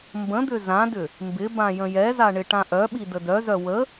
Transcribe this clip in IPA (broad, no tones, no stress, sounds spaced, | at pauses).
m b ə̃ d̪ ʏ z ã d ʏ | m b ɪ b ã j ə̃ j ɛ z a ɳ ɪ ʈ ã ʔ œ ɓ i d ə d œ z œ w ə